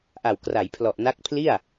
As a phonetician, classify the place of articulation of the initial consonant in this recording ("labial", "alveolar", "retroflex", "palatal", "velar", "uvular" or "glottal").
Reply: glottal